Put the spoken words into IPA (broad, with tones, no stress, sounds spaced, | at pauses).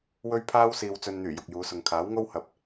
w ɵ˥ ɥ pʰ aː˥ w s iː˨ w t͡s ɵ˨ n n̪ yː˨˩ j ʊ˨ k̚ j uː˨˧ s ʊ˨ ŋ kʰ aː˨˥ w ŋ o˥ w h ɐ˨ p̚